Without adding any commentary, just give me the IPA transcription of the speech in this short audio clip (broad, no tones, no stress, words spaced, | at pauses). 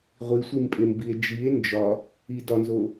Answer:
ʁʷisʷimpʼembie̯ d͡ʒie̯ nd͡ʒɒ | idɒnzo